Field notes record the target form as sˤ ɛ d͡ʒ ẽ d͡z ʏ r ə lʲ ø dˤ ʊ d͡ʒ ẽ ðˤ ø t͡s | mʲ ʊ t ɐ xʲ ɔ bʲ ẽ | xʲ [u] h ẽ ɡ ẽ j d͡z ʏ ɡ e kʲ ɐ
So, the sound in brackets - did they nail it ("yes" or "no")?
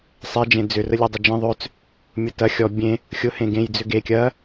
no